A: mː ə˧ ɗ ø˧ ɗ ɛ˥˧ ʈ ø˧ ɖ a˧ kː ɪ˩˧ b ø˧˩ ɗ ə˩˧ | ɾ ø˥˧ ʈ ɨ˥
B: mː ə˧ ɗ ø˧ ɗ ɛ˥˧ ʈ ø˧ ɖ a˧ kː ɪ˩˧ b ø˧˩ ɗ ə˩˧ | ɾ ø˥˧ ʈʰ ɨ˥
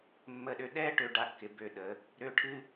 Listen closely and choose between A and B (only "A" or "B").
B